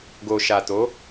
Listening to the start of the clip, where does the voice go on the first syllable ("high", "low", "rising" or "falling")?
low